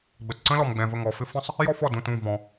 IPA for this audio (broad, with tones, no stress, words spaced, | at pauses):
ɡ͡bə˨t ǀə̃˥lɔ˨mɡ͡bɛ̃˨ və˦˨ŋɔ˨fɪ˥ fə̃˥sˤ | jɔ˥fɔ˦˨ dũ˦˨tũ˦˨ vɔ̃˨